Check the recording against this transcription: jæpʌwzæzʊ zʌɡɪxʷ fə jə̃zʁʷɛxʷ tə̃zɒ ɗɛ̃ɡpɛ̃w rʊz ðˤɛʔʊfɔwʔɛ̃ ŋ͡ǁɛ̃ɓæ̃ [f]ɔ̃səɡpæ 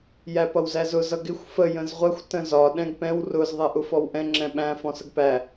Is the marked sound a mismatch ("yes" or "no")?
no